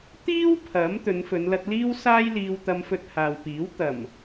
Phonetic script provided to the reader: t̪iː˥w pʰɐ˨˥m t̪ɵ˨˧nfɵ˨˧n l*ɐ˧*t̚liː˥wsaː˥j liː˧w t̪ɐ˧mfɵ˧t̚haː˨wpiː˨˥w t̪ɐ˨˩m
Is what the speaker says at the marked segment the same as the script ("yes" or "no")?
yes